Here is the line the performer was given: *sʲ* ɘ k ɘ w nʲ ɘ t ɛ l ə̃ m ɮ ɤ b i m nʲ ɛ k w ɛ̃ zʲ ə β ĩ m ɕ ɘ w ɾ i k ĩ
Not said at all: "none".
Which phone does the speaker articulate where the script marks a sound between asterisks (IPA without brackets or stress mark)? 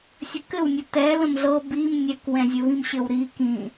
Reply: sʲ